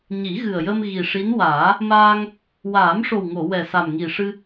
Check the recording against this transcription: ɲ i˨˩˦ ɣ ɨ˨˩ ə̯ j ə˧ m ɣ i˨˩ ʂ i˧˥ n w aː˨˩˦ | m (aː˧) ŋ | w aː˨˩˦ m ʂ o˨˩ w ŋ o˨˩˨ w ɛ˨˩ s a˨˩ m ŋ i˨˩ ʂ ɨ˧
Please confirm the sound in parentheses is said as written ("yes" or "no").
yes